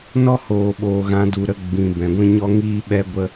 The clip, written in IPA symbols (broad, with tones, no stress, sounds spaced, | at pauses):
n ɔ˦ h oː˨ ɓ oː˨ ɣ ã˨˦ d u˨ ɾ ə˧ ɡ͡b ĩ˨ b ɛ̃˨ ɡʷ ĩ˦ ɲ ɔ˦ ŋ iː˦ ɓ ɛ˦ ɡʷ ə˦